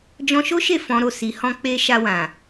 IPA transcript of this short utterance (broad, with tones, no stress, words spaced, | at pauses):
d͡ʒɔ̃˧ʃo˦ʃe˦˨ fɔ̃˨˦ɾo˦˨ si˨˦hɔ̃˦k͡pe˦ ʃa˧wã˨